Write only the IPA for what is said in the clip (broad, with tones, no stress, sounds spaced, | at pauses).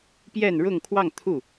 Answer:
p j ɛ˥˧ n ɻ ʊ˥˧ ŋ kʰ w ɑ˥˧ ŋ t̪ʰ u˥˩